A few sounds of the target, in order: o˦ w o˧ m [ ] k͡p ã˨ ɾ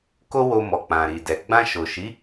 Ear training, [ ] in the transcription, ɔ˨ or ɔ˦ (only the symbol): ɔ˨